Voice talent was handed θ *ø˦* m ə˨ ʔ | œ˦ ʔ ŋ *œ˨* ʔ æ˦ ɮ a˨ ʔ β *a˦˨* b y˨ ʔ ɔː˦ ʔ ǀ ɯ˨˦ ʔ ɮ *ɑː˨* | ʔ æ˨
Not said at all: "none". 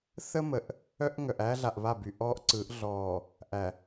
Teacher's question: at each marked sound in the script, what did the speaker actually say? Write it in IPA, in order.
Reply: ə˦, œ˨, a˦˨, ɔː˨

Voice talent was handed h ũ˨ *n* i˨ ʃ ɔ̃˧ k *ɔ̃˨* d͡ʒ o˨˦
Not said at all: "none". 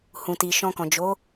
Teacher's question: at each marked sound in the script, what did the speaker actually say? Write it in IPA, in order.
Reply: t, ɔ̃˨

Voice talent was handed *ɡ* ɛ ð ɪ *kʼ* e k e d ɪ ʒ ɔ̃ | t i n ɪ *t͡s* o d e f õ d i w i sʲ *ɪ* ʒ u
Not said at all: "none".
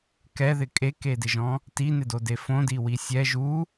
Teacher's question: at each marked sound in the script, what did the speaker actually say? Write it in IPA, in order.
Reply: k, kʼ, d, ɛ

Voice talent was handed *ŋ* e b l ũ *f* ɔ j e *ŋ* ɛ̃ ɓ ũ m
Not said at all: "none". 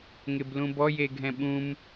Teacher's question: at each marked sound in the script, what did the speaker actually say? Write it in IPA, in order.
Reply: ŋ, b, ɡʱ

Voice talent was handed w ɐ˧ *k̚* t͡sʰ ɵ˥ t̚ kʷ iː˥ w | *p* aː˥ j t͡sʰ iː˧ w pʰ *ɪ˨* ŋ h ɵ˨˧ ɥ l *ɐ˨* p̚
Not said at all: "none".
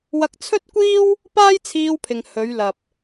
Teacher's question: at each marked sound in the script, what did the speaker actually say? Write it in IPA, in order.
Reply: k̚, p, ɪ˨, ɐ˨

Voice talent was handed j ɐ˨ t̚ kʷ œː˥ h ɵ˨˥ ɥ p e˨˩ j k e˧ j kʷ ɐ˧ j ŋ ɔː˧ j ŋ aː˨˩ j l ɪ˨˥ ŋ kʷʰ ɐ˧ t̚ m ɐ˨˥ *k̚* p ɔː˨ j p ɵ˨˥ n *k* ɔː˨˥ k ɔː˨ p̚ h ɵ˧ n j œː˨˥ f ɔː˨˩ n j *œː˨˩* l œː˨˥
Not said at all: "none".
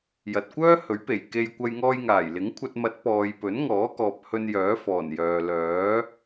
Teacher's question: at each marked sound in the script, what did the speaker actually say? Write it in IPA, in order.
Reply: t̚, ŋ, œː˨

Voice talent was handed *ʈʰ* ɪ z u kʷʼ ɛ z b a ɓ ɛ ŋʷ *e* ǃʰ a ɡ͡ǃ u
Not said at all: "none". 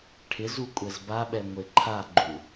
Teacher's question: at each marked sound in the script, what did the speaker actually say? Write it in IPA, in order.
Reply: ʈʰ, e

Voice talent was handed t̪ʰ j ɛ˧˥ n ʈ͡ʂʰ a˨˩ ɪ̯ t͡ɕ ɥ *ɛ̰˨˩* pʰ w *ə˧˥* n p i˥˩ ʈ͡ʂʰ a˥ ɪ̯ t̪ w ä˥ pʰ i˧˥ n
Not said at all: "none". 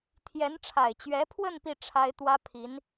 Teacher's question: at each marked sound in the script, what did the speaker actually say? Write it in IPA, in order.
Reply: ɛ˧˥, ə˥˧

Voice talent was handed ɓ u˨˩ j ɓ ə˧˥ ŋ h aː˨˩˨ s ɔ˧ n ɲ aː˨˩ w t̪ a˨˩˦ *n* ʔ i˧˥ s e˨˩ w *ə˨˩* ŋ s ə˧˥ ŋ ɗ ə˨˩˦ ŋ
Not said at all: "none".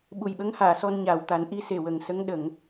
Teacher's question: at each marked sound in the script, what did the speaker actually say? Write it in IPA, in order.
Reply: n, ə˨˩

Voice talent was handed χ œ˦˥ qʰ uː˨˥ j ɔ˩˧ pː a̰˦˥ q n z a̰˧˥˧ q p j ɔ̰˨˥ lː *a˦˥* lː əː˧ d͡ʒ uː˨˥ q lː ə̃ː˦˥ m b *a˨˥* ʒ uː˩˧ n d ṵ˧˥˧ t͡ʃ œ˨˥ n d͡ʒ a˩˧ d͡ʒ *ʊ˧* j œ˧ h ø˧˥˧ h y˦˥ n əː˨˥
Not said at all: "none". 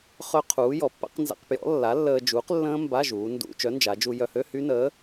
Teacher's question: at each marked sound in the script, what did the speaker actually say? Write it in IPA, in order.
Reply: a˨˥, a˧˥˧, u˧

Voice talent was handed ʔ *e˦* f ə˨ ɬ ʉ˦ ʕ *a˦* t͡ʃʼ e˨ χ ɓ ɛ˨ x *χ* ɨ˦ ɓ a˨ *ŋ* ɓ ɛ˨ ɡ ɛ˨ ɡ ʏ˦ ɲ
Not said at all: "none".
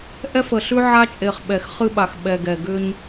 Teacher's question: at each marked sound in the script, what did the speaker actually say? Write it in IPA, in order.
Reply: ɛ˦, a˦, χ, x

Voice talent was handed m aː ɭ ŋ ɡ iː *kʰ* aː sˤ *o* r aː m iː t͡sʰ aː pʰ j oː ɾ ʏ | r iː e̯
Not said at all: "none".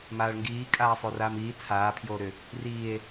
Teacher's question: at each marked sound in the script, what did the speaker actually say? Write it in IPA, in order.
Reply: kʼ, o

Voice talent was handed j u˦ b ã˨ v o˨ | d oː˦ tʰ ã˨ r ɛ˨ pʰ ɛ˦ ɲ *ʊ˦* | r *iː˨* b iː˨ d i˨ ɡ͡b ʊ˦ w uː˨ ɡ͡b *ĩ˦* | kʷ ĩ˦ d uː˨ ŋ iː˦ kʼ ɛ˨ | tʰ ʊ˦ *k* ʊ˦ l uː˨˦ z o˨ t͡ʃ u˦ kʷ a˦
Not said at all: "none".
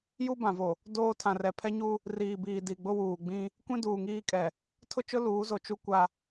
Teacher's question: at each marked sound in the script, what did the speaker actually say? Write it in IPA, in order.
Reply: u˦, iː˨, ĩ˦, t͡ʃ

